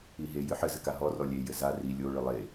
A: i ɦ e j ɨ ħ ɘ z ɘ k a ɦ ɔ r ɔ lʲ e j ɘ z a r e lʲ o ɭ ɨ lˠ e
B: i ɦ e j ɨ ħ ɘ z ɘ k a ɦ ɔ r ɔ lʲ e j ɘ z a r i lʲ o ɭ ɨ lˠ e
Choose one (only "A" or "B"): B